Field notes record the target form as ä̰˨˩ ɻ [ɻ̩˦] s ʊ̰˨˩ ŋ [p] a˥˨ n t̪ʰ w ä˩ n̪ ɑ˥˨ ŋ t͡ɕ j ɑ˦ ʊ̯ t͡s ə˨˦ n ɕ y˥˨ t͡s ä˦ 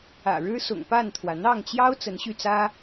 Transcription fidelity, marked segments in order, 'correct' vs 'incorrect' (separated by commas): correct, correct